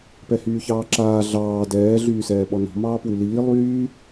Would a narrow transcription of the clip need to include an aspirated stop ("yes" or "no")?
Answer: no